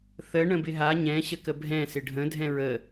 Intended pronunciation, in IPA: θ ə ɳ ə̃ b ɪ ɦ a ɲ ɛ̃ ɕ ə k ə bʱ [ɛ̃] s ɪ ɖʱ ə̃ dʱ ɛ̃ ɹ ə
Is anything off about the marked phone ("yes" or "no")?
no